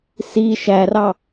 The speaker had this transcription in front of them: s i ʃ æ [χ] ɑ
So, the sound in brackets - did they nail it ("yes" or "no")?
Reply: no